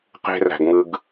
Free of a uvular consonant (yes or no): no